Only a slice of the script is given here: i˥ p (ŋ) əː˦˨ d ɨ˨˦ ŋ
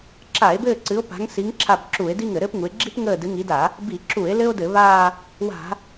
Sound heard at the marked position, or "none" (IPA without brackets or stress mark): ŋ